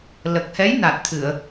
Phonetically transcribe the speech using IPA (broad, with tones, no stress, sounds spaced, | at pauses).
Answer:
l ə˨˩ k̚ h ɛ˧˥ j n a˨˩ t̚ t̪ʰ ɨ˨˩˨ ə̯